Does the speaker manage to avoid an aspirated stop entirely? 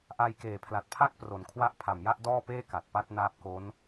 no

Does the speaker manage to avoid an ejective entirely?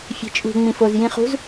no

